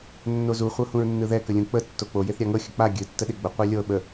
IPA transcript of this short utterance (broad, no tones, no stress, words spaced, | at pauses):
nːozu χʷɤhũɹnːɯðɛ kəlʲũk͡pə tːok͡po jeθɾʲaŋɤ xʲək͡pa ɡʲɨ tːəɗeɡ͡bə qʷɛlʲɤ ɓə